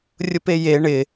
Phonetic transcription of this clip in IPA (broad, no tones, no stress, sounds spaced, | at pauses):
rʲ ʊ p e j e ɳ ɪ